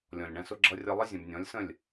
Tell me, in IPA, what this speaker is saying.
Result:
lʲ ɔ̃˨ lʲ ɳ æ̃˧ s ʊ˧ ɡ͡ǁ ʌ˧ rʲ ʌ˧ lˠ ə˦ zʲ ə̃˨ b nʲ ɔ̃˨˦ lʲ s ə̃˦˨ lʲ

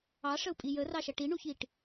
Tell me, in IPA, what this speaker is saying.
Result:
ɑ ʂ ə u̯ pʼ i j ə r ɑ ʃ ɐ ʈ i ɳ u ç i ʈ

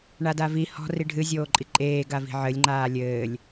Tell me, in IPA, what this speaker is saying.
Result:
ɳ a d a v i h ɔ̤ r i ɖʱ ɨ zʲ oː ǃʼ i ǃʼ eː ɡ a v i̤ ʕ ɘ lʲ ŋ͡ǃ aː lʲ ɘː lʲ

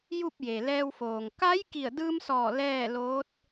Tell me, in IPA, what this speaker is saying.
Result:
j u˥˨ p̚ j e˩ l ɛː˧ w f oː˩ ŋ k a˧˥ j k i˧˩ ə̯ d ɯː˧ m s ɔː˧˩ l ɛː˥˨ l oː˧˥ t̚

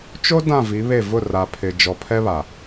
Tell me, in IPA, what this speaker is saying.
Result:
t͡ʃ o˦ d ã˦˨ v i˨˦ β e˦˨ v ʊ˦˨ r a˨ pʰ ɪ˨ d͡ʒ ɔ˨ pʰ ɛ˦ β a˨

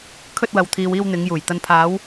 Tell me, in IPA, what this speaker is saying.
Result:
kʰ ɵ˧ t̚ w ɐ˨ w t̪ʰ iː˨ w iː˧ w n̪ ɪ˨˧ ŋ j uː˨˩ j t̪ ɐ˨ n pʰ aː˨˧ w

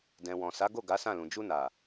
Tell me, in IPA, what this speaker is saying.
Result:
d ɛ̃˨ w ɔ̃˨ s a˨˦ ɡ o˦˨ ɡ a˨˦ s ã˦˨ l ũ˨ d͡ʒ u˧ n a˨

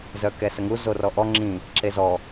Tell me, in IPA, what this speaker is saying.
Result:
z œ k ɛ s ə ŋ u z o r ɔ ʔ ɔ ŋ͡ǁ ĩ | ǁ e z ɔ

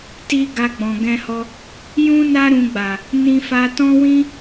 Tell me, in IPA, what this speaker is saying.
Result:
t i˦ ɡ a˧ ɡ͡b ɔ̃˨ ɡ ɛ̃˧ h ɔ˧ | j ũ˦ n a˦ ɾ ũ˧ ɡ͡b a˨ | n ĩ˧ f a˧ t ɔ̃˦ w ĩ˦

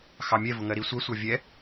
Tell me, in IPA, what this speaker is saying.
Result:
x ɑ mʲ ɛ v ʊ ŋ ɜ ɾ i sʷ ɜ sʷ ɑ vʲ ɛ

